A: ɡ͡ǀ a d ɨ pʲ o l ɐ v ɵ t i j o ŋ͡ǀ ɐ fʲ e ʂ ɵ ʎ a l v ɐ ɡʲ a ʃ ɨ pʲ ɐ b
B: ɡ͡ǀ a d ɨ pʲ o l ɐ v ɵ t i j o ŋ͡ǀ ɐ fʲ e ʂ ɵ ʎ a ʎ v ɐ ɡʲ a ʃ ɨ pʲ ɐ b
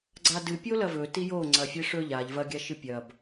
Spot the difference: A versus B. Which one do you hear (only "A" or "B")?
B